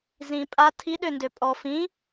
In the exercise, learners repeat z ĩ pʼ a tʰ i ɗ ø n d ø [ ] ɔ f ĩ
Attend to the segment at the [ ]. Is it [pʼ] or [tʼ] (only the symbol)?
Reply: pʼ